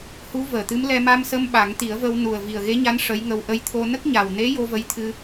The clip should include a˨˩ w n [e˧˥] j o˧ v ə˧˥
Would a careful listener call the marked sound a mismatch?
no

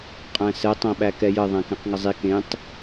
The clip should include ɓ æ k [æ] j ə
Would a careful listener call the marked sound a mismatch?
yes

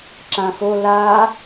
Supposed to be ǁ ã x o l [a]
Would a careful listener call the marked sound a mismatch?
no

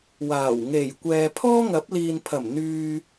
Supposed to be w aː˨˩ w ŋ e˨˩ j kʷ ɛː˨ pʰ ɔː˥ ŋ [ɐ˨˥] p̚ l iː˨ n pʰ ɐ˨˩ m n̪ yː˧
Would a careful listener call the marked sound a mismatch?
no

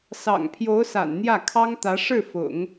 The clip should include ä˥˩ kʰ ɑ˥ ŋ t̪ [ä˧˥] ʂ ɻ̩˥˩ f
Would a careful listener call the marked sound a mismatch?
no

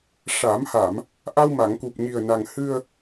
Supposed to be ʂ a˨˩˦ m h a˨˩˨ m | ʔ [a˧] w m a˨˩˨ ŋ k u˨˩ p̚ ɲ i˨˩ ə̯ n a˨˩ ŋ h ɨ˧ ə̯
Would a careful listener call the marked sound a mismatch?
no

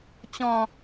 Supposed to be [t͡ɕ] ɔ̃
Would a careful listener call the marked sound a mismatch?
no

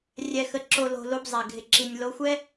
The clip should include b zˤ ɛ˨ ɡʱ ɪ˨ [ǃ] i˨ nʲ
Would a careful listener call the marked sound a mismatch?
yes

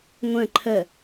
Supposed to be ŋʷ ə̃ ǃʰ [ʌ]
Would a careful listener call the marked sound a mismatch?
yes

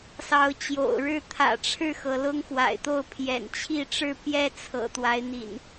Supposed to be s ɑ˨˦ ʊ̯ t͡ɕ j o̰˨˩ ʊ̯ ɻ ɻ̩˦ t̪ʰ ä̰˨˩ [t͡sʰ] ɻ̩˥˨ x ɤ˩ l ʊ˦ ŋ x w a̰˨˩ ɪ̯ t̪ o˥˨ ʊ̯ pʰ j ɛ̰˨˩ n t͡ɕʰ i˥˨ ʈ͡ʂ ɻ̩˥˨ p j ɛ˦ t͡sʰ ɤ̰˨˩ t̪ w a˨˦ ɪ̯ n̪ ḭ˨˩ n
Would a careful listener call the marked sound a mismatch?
yes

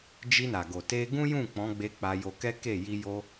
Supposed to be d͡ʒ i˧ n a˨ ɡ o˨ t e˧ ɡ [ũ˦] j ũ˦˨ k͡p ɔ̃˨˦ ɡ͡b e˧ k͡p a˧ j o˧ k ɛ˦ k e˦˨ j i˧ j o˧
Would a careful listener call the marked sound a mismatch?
no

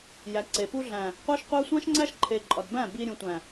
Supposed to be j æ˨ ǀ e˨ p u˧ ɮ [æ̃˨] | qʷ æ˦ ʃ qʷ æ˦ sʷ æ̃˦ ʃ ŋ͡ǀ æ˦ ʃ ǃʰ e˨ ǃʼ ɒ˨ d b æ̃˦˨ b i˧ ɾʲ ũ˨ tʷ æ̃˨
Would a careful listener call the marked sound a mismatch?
no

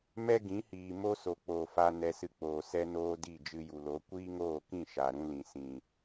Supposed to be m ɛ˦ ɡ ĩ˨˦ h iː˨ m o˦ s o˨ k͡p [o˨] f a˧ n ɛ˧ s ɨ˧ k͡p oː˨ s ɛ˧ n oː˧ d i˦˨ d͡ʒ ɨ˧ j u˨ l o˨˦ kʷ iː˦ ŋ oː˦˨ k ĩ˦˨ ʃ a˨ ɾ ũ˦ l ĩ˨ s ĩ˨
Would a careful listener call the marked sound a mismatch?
yes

